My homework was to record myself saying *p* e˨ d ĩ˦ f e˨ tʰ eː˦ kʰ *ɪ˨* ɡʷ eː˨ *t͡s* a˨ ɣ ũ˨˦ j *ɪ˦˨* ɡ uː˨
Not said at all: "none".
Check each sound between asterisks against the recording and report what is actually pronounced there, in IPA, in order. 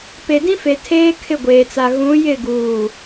p, ɪ˦˨, t͡s, ɪ˦˨

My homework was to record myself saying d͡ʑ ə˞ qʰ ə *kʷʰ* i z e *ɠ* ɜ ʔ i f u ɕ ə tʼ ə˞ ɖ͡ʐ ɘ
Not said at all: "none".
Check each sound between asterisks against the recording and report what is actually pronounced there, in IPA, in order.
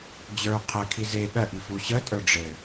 kʰ, ɠ

